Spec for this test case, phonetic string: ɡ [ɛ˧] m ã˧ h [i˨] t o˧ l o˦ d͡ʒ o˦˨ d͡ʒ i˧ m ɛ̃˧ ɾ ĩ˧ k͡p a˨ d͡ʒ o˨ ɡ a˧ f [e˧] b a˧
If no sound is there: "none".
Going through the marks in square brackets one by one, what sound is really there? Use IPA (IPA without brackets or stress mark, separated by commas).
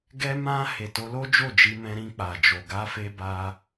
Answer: ɛ˧, e˨, e˧